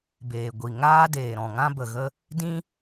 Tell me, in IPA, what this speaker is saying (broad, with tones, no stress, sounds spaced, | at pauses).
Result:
b eː˨ ɡʷ i˨ ŋ aː˦ d eː˨ ɾ ɔ̃˨ ŋ ã˦ b ə˨ ɣ ə˦ | d ĩ˦